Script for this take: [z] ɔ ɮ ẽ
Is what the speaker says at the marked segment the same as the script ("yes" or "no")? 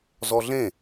yes